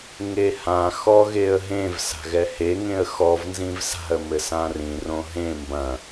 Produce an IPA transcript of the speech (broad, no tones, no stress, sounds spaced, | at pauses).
ŋ e h ã x ɔ ɣ e ə̯ ɦ ẽ v s a̤ ɣ ɛ h e ŋ ẽ ə̯ x ɔ v n z ĩ v s a̤ ə̯ m ɘ s ã r ĩ r õ ɦ ẽ m b ɐ̃